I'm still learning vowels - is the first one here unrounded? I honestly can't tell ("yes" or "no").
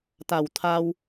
yes